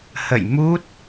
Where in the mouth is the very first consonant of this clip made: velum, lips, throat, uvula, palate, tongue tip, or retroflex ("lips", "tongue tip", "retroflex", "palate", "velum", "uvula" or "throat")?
throat